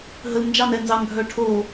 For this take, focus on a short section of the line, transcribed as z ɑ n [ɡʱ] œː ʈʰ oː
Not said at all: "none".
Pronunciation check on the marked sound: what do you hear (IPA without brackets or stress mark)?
ɡʱ